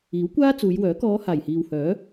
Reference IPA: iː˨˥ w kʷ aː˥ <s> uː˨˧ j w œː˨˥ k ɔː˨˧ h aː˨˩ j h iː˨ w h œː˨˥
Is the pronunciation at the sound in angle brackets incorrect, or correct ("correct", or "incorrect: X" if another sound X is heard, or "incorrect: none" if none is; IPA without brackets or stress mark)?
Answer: incorrect: t͡s